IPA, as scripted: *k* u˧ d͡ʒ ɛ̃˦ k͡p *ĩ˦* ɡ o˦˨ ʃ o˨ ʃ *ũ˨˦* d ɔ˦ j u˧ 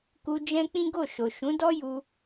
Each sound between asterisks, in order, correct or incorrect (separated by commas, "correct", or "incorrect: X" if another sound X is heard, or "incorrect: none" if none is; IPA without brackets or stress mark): correct, correct, correct